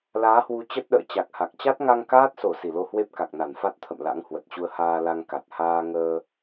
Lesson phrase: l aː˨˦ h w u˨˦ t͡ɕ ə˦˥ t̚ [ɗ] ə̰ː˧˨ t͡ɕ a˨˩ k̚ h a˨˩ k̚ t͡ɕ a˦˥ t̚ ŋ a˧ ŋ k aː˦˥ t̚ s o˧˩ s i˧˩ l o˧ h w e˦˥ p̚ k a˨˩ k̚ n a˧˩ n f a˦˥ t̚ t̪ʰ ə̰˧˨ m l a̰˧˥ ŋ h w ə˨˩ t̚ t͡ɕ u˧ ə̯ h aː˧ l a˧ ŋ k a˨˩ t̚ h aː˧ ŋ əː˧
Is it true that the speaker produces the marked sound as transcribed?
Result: yes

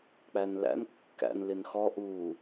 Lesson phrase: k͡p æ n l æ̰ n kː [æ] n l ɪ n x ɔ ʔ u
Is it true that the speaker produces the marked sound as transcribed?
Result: no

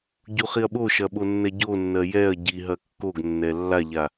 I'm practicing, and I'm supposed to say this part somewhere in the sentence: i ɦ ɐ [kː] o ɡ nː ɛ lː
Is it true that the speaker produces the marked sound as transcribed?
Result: yes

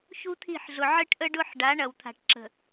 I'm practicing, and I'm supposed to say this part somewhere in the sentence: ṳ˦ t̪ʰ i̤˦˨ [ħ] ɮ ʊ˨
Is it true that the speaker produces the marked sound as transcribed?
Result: yes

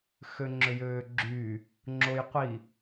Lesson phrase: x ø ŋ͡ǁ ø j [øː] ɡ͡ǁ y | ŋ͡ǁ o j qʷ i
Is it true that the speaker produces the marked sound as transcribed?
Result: yes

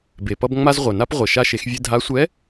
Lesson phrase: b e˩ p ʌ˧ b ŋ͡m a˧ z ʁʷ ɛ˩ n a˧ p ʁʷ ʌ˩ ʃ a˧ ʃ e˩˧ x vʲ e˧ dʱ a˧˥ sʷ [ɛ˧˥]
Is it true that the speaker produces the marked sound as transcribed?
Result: yes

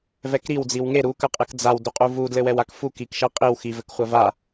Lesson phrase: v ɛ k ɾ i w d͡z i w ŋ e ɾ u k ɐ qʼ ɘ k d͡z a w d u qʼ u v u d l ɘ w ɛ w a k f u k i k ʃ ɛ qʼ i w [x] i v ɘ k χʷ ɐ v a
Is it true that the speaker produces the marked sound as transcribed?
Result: yes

